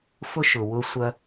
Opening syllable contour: high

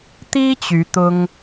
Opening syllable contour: high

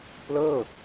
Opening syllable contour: falling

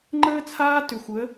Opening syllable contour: high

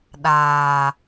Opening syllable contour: low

